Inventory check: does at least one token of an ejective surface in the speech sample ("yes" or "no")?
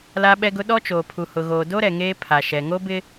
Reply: no